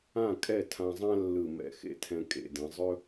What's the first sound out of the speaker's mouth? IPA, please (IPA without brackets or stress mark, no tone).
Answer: ã